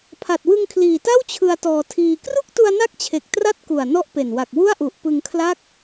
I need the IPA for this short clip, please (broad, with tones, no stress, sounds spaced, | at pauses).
pʰ a˨˩ t̚ w ɯ˧ ŋ kʰ l iː˨˩ t a˥˩ w t͡ɕʰ ɯ˧ a̯ t ɔː˧ tʰ iː˧ k r u˥˩ k̚ t u˧ a̯ n a˦˥ k̚ t͡ɕʰ e˨˩ k̚ t r a˥˩ t̚ k u˨˩ a̯ n ɔ˦˥ ʔ p e˨˩ n w a˨˩ k̚ w u˥˩ a̯ ʔ u˨˩ ʔ p ɯ˧ ŋ kʰ l a˥˩ k̚